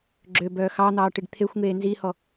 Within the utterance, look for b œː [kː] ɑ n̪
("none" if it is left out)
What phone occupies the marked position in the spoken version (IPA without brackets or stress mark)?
x